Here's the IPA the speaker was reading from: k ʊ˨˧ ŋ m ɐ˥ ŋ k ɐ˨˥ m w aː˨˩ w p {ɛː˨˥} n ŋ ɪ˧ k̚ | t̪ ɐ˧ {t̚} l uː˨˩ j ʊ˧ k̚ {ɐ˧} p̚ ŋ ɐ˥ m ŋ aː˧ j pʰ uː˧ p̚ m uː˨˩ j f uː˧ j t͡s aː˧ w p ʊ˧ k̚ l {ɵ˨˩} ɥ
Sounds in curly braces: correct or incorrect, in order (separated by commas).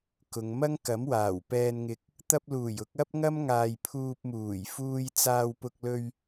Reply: incorrect, incorrect, incorrect, incorrect